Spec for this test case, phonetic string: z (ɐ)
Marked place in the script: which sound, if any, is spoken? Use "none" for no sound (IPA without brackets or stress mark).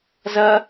ɐ